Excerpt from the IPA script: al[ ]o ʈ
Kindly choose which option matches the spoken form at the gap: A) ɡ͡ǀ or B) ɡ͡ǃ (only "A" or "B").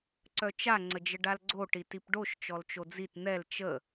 A